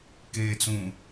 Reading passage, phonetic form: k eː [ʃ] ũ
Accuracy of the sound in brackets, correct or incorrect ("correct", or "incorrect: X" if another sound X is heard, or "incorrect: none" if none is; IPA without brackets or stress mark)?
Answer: incorrect: t͡s